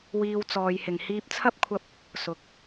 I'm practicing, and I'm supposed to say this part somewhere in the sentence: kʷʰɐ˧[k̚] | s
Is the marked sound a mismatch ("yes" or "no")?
yes